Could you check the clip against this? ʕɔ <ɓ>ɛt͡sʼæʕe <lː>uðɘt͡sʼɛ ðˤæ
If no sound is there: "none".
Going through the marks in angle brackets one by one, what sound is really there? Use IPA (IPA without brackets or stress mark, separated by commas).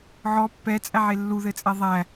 pː, lː